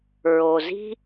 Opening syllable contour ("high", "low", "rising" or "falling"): low